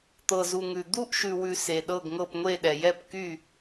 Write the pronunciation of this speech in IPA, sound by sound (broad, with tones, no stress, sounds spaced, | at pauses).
t̪ ɤ˨ z u˨ ŋ ʉ˨ d̪ u˦˨ ʔ ʃ ʉ˨ w ʉ˨ s e˨ ɗ ɤ˦˨ ɡ ŋ ɤ˦˨ p ŋʷ e˦˨ ɗ ɛ˨ j ɛ˦˨ p k y˦˨